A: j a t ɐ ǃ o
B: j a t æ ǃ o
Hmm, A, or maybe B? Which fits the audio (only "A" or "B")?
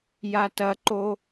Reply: A